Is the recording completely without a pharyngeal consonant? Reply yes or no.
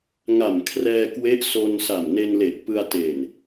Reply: yes